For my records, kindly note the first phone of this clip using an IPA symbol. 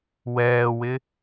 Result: w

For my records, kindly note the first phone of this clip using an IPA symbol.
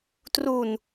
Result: t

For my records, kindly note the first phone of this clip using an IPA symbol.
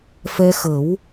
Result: f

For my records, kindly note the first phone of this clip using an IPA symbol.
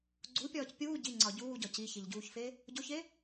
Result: ɡ͡ǀ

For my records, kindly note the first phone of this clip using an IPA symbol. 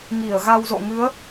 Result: ŋ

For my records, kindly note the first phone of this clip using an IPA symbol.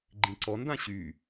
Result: ɡ͡ǃ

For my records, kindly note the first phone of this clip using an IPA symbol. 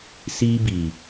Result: s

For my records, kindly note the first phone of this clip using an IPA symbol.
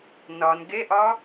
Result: n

